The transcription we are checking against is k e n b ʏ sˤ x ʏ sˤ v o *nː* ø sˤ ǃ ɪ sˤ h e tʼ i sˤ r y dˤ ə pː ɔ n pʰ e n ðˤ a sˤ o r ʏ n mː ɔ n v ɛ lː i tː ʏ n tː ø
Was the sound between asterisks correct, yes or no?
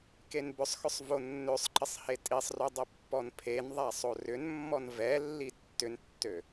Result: yes